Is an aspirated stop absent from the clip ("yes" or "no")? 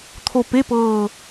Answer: no